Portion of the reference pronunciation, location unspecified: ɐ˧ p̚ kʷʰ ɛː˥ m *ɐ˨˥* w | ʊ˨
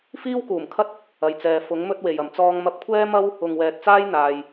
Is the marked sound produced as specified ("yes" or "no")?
no